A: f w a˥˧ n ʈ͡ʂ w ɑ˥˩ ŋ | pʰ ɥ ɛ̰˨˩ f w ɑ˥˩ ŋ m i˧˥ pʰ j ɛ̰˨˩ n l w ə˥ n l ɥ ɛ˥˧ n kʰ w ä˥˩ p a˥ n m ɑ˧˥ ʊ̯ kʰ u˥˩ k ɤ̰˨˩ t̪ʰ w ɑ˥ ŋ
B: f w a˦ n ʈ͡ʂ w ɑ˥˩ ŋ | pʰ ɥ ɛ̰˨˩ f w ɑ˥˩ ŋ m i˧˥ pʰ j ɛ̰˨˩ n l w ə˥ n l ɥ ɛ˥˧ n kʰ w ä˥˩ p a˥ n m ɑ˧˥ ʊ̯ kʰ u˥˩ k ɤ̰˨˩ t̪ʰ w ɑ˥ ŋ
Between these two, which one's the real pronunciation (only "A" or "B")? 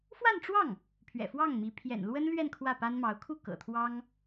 A